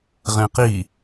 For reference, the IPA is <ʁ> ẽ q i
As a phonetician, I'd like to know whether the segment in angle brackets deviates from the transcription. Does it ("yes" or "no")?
no